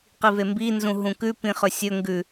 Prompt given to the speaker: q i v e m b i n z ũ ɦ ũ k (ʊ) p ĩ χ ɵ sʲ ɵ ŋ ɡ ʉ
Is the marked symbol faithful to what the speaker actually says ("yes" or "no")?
no